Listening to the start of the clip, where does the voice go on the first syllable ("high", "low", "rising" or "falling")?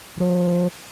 high